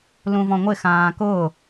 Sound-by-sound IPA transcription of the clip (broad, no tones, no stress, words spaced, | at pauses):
lũvɔ̃ŋʷɪ xãːkʊ